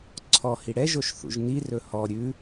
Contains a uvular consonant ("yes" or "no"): no